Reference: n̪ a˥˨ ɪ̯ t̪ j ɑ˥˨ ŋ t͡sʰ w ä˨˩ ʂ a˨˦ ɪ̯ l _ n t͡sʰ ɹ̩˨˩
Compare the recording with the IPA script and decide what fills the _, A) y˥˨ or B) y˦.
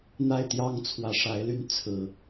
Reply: A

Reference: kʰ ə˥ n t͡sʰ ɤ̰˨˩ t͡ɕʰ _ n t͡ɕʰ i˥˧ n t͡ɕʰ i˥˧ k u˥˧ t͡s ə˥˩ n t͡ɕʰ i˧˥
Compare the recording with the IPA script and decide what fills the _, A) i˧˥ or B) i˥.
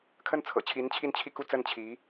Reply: A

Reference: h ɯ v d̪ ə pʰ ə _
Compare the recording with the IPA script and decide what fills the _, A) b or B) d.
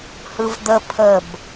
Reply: A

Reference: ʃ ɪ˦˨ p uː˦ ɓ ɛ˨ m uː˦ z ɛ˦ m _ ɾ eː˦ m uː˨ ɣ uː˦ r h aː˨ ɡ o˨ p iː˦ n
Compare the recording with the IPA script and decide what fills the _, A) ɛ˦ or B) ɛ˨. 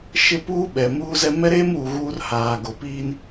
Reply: A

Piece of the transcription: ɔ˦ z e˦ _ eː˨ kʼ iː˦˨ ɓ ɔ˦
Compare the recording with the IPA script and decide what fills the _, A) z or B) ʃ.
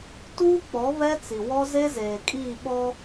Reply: A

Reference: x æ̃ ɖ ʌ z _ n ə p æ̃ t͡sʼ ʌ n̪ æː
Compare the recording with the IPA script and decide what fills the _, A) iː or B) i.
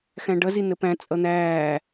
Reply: B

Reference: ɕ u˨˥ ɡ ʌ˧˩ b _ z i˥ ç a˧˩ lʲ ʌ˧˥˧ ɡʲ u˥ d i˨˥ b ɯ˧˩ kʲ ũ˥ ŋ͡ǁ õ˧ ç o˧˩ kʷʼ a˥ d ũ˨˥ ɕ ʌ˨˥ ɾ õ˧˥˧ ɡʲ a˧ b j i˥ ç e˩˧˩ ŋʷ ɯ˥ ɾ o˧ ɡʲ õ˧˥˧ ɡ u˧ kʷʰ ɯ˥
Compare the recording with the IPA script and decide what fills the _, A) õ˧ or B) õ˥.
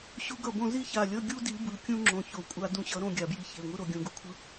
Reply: A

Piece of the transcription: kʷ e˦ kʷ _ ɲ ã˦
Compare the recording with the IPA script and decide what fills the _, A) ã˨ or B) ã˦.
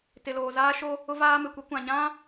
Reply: A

